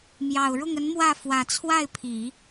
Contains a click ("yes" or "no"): no